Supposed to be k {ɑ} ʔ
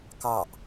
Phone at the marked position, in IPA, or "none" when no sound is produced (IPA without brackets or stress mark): ɑ